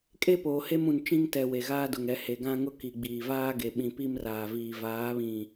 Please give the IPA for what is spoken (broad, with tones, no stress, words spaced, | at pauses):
kʼe˦poː˨he˦mũ˨n t͡ʃĩ˦ŋtɛ˨ we˨ɣaː˦dʊ˨ŋ ɛ˨he˨ɡã˦ŋʊ˦ ki˨ɡ͡biː˨vaː˦ ɡe˨ ɓĩ˨pi˦mraː˨viː˨ vaː˨˦βĩ˨